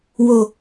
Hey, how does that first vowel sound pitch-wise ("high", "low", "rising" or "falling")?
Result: low